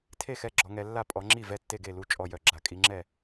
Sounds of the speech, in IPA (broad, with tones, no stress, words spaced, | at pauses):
tʰe˥˩xɛ˥˩ ɡ͡ǁɔ˨˦ŋɛ˨˦ lːa˥˩pʼɔ˨˦ŋ͡ǁi˥˩ vɛ˥˩tːe˥˩ɡe˥˩lu˥˩ t͡ʃʼɔ˥˩jœ˥˩ɡ͡ǁa˨˦ kʼi˨˦ŋ͡ǁɛ˥˩